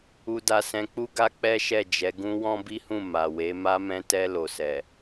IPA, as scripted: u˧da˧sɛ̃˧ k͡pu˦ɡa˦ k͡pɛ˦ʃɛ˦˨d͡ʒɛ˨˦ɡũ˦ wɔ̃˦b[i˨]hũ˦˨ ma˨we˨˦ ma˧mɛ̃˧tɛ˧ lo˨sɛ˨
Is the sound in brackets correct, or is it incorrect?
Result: incorrect